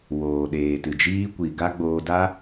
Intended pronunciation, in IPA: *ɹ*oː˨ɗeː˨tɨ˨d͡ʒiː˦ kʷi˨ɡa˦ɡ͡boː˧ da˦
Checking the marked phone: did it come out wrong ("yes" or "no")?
yes